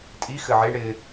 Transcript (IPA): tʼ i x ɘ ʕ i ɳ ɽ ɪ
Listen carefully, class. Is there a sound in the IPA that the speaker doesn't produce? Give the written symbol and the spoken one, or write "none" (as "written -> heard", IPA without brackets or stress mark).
none